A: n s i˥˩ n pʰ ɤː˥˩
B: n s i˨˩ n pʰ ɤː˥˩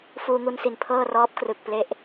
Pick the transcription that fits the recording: B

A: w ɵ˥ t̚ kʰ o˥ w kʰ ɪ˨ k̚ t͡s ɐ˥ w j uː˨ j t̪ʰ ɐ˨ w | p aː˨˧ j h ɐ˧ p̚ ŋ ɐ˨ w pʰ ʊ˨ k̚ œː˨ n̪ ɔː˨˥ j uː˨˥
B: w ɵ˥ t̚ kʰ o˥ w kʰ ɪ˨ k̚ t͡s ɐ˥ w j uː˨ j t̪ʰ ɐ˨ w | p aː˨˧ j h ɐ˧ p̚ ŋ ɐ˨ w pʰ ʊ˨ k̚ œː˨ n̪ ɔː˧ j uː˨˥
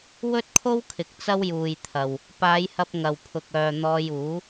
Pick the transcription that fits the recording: B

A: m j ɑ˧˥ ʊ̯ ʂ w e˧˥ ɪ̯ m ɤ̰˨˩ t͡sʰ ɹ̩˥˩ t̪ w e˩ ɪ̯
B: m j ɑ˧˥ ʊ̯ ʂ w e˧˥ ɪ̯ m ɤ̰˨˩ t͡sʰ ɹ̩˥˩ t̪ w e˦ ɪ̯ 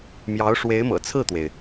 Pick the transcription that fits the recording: A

